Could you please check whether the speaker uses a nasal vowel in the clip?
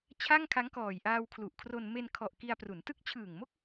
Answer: no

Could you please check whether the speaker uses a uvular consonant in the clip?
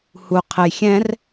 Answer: yes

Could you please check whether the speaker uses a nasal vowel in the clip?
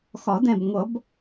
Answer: yes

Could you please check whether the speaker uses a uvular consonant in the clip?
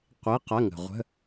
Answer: yes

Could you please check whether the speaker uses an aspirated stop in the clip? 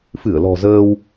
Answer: no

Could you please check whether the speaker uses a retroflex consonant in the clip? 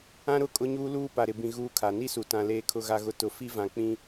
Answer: no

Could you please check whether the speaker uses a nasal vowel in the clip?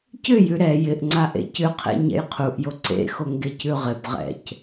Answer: no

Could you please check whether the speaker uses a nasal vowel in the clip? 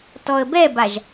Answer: no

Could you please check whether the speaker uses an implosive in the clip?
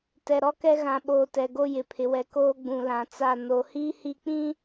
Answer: yes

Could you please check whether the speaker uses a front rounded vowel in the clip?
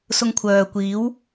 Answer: yes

